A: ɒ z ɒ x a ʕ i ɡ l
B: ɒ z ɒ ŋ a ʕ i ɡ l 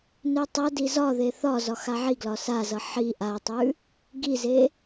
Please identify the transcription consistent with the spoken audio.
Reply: A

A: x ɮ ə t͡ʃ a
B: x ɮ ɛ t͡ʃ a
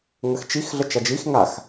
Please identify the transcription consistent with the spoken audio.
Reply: A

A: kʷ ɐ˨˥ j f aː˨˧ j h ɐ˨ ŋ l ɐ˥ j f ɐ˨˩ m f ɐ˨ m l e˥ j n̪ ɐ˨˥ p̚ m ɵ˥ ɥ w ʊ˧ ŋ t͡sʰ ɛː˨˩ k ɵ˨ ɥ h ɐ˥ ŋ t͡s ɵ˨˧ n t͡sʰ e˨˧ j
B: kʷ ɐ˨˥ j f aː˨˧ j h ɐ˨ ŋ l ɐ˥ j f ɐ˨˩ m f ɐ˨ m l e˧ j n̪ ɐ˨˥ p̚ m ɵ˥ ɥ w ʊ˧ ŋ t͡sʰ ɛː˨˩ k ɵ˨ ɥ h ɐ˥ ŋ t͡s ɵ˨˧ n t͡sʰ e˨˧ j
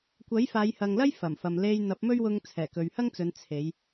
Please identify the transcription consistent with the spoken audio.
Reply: B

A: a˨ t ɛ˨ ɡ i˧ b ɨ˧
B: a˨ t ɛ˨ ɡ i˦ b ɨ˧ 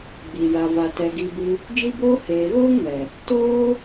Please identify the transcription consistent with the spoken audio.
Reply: A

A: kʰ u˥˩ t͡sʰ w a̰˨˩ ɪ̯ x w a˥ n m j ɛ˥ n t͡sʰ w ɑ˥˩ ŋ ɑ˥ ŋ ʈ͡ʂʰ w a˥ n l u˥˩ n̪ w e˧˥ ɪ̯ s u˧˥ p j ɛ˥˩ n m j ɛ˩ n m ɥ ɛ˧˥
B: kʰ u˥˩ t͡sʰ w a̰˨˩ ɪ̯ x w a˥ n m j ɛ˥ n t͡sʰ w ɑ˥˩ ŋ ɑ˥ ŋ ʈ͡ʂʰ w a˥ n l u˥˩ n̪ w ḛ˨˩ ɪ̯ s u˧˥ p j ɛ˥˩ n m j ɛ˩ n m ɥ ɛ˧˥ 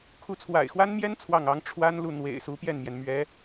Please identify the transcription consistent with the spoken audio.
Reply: B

